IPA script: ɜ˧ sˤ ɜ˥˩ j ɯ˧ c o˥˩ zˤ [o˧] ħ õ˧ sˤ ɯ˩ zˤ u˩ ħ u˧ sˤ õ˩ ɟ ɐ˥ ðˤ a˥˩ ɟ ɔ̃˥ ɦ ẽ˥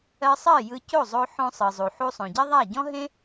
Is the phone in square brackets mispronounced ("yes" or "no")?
no